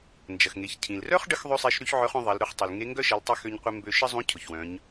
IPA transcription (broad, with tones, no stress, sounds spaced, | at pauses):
n d͡ʒ ɐ˩ x ŋ e˩˧ ç cʰ ĩ˩ l r œ˥ χ ɖ ə˧˥ x ðˤ ø˥ sˤ e˧˥ ʃ ɾ y˧˥ ç ʕ œ˧˥ χ œ̃˧ ðˤ ɐ˩˧ l ɾ ʊ˧ χ tˤ ɪ˩ l ŋ e˧˥ ŋ ɡ œ˥ ʃ ɐ˩˧ l tˤ ɪ˧ x ø˧ ɲ qʷ ɪ˧ m b ø˧ ʃ ə˥ zˤ ũ˧˥ cʰ ʊ˩ ç w œ̃˩˧ ɲ